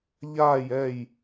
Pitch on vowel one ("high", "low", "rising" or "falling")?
falling